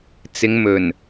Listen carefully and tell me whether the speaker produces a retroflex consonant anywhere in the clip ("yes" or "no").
no